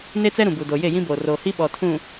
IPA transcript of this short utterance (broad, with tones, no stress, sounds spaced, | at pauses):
n e˦ t͡s ɛ˦ ɾ ũ˨ b u˨ d o˨ j e˦˨ j ĩ˦ b oː˨ r oː˨ h i˦ ɓ ɔ˨ tʰ ũ˨